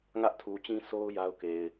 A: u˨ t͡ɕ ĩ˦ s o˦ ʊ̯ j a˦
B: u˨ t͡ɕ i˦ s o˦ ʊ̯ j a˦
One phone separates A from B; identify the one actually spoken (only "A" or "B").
A